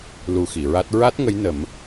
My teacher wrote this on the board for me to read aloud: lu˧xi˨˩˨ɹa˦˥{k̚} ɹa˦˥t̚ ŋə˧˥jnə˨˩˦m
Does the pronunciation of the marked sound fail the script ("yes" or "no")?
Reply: yes